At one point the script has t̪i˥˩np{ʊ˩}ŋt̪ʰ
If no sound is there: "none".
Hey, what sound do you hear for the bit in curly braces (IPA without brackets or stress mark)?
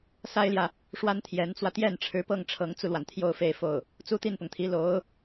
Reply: ʊ˩